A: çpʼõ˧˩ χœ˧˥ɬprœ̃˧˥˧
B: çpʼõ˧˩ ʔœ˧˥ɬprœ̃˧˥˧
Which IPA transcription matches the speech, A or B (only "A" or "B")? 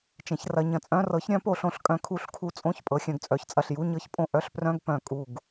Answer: B